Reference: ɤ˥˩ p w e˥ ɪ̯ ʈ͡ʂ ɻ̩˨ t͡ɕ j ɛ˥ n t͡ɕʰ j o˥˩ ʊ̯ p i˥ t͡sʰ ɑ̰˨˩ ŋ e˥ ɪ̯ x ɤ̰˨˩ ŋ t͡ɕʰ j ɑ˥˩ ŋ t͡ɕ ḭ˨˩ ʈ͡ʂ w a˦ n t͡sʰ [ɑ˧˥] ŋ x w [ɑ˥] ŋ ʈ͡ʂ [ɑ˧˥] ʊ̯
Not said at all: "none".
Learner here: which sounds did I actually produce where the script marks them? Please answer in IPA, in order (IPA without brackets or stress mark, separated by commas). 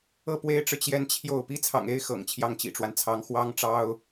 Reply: ɑ˧˥, ɑ˥, ɑ˥